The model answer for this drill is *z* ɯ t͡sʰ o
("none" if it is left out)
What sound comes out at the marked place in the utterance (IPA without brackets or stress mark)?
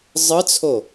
zˤ